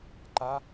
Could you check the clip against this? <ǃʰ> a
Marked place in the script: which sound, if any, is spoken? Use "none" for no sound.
ǃ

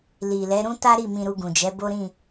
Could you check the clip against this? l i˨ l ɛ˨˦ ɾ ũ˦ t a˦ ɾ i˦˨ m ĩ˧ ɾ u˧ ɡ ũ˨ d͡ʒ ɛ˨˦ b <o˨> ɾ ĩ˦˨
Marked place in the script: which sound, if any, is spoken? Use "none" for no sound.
o˦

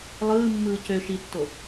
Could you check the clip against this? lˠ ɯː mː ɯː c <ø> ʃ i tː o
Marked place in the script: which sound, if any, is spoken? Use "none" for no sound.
ø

